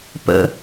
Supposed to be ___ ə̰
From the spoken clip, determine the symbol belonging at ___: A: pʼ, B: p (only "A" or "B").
B